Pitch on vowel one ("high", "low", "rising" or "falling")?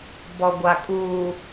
low